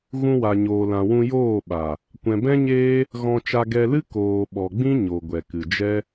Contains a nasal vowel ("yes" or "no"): yes